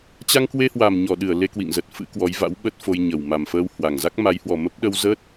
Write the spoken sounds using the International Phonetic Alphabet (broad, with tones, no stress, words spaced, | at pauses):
t͡ɕa˧ŋkwe˧hwa˨˩m ɲɔ˧˩ɗɨ˧˩ə̯ le˧kwḭ˧˨ŋzə˨˩t̚ fɨ̰˧˥kwɔ˨˦jva̰˧˥w ɓə˦˥t̚fo˧jɲə˨˩w ma˨˩mfəː˧w hwa˨˩ŋ za˦˥k̚ma˨˦jhwɔ˨˩mə˦˥p̚ ɗə˧w zəː˦˥t̚